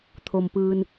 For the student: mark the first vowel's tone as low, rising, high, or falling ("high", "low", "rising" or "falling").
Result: low